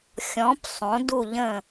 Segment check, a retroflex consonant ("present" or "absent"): absent